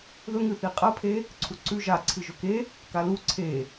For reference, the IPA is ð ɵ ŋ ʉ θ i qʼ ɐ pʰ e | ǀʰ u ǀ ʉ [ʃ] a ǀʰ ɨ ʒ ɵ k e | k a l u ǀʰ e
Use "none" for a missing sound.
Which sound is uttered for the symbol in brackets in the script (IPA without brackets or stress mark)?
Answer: ʒ